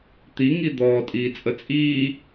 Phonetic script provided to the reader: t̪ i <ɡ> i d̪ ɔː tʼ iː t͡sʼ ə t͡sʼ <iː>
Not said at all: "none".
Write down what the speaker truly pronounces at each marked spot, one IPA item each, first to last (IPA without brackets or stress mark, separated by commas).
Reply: ŋ, iː